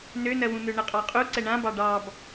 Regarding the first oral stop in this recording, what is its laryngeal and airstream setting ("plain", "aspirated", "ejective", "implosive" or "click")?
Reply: ejective